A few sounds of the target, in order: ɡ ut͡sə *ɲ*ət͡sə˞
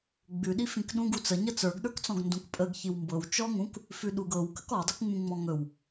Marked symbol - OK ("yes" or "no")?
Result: yes